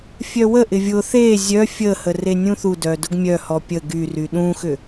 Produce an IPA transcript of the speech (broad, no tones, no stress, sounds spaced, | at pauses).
fʲ œ w ə ʔ ɪ vʲ ʊ θ e zʲ œ fʲ ə h ə r e nʲ ũ θ u d œ d ʊ ɡ mʲ œ h ɔ pʲ ə ɡ y r y ɗ ũ x ʏ